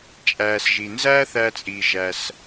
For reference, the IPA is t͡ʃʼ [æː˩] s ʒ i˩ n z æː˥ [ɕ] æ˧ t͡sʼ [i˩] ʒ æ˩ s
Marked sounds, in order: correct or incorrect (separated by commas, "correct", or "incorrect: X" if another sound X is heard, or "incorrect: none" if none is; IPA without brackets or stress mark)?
correct, incorrect: θ, correct